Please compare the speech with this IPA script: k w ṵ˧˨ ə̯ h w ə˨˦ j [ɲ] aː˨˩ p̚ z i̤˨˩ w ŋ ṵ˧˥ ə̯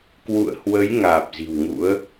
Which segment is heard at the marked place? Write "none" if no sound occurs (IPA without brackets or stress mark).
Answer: ŋ